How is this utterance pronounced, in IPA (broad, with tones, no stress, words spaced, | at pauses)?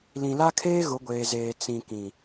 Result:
lĩ˨la˦kʰeː˦ ɣʊ˨˦ɡʷeː˨zeː˨ t͡sĩ˨kĩ˨